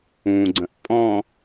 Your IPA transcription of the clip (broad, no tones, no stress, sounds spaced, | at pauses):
ũ ɡ͡ǀ ɐ̃ ʔ pʼ ɔ̃